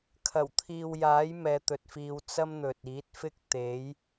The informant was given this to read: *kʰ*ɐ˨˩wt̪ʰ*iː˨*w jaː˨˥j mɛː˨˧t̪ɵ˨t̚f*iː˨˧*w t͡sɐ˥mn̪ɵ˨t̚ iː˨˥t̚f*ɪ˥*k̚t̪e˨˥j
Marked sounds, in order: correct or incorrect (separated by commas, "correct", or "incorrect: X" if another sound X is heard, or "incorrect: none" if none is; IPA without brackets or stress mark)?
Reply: correct, correct, incorrect: iː˧, correct